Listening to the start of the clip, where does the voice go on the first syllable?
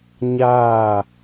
falling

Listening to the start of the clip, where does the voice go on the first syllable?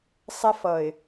high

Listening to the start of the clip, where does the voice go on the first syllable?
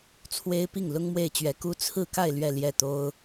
high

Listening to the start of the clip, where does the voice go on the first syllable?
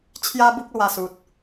high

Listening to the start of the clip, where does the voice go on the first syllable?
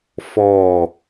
falling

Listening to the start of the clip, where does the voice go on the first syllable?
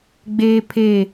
high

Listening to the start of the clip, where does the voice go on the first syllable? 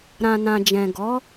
low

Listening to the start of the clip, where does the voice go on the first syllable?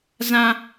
high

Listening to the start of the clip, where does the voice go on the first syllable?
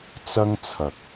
high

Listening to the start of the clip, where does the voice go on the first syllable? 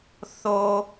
high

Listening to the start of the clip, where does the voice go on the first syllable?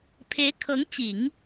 rising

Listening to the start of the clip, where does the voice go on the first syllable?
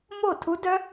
falling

